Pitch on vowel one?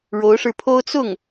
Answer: rising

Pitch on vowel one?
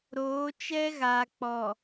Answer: rising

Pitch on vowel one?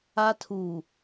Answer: high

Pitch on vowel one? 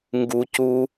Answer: low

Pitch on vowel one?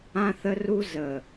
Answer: high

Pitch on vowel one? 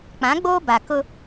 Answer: rising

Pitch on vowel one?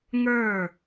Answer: falling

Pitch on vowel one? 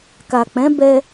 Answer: low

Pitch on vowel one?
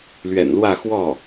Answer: low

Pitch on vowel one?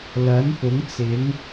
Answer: rising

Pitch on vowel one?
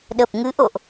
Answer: low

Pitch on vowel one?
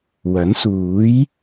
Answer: rising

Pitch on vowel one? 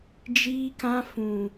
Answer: high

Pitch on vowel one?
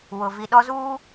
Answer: low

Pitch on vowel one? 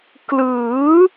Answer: rising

